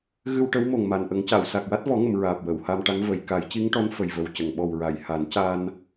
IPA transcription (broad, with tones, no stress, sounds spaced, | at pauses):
ɣ ɨ˧ w ʈ ə˧˥ w m o˨˩ ŋ m a˨˩ n ʔ ə˨˩˦ ŋ c a˨˩˨ w s a˨˩ k̚ w a˦˥ t̚ v ɔ˨˩˦ ŋ ə˨˩˨ m ɹ aː˨˩ p̚ w ə˨˩˨ w h a˧ m ʈ a˧˥ ŋ v ə˨˩˨ j k a˨˩˦ j c i˧˥ ŋ ʈ ɔ˧˥ n f ə˨˩ j v ə˨˩ w c ə˨˩˨ ŋ ɓ ɔ˨˩ w ɹ a˨˩˨ j h a˨˩˦ n c a˧ n